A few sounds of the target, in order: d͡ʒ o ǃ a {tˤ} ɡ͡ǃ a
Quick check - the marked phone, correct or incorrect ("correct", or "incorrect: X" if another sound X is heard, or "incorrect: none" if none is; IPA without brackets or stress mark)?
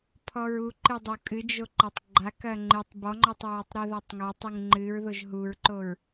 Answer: correct